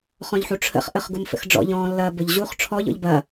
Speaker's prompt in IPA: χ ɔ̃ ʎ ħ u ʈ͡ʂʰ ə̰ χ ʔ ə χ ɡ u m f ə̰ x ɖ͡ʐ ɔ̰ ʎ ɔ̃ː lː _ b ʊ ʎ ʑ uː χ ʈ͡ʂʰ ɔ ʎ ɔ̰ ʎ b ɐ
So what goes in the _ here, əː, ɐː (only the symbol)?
ɐː